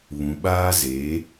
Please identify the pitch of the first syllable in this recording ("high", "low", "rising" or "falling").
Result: low